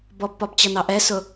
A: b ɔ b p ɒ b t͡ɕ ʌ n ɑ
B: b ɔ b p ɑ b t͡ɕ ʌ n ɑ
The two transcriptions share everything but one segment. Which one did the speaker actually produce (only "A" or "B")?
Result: A